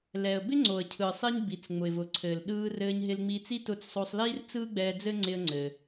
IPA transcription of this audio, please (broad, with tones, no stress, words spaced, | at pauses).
lɛ˩ə̯ bɪ˥ŋ͡ǀo˩ə̯cʰɯː˩sˤi˧ɲ bi˩t͡s ŋ͡mʊ˩ɪ̯vʊ˩ ǀʰɘː˩lɗɯː˧ rɘː˧ɲ ɦɪ˧lŋ͡miː˧t͡si˥ tʊ˧t͡ssˤo˧sˤliː˥r t͡sɯː˥ɡ͡bɛː˧d͡zɘ˥ ŋ͡ǀɪ˧ə̯ŋ͡ǀɘː˩